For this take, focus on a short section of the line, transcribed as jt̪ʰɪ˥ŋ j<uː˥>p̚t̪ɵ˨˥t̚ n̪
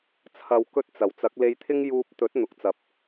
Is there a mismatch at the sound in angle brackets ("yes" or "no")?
yes